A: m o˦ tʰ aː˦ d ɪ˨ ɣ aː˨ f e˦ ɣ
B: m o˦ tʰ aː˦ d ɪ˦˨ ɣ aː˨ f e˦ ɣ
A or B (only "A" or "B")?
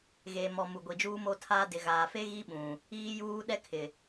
A